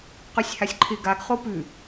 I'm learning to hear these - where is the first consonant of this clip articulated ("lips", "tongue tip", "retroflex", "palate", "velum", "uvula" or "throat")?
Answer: uvula